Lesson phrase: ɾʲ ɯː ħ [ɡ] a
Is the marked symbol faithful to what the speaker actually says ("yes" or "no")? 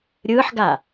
yes